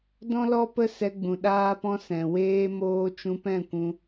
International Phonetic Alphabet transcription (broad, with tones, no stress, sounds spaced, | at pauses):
d ɔ̃˦ l ɔ˦ p ə˦ s ɛ˧ ɡ͡b ũ˨ ɗ aː˦ p ɔ̃˦ s ɛ̃˨ w eː˦ m oː˦ t͡ʃ ũ˧ p ɛ̃˦˨ kʷ ũ˧